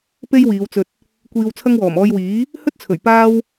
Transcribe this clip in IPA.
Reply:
p e˥ j w iː˨˧ w t͡s ɵ˧ t̚ | kʷ iː˧ w t͡sʰ ɐ˥ ŋ w ɔː˨˩ m ɔː˧ j w iː˨˥ | h ɵ˥ t̚ t͡sʰ ɵ˨˩ ɥ p aː˥ w

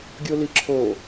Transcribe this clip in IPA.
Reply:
ɡʲ o l i ǁʰ o

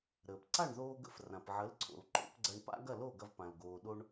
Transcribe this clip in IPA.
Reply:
ɾ əː˩ p ǀ a˥˩ ɳ ð oː˧ ɡ ə̰˧ f r ã˩ p ʕ ə˩˥ l ǀʰ o̰˩ l ǃ o̰˩˥ p ɡ͡ǀ ɐ˧ ɳ p a̰˥ ɡ ɐ˥˩ l o˥˩ ɡ ɐ˧ v p ã˩ l ɡ oː˩ ɗ o˧ ɳ

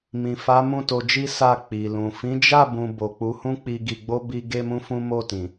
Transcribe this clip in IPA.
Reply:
m ĩ˨ f a˨˦ m ũ˦˨ t o˧ d͡ʒ i˦ s a˦˨ k͡p i˨ l ũ˨ f ĩ˨˦ d͡ʒ a˦˨ b ũ˧ b o˨ k͡p u˨˦ h ũ˦ k͡p i˧ ɡ i˧ ɡ͡b o˦ b i˦ ɡ e˦ m ũ˦ f ũ˦ m o˦˨ t ĩ˨

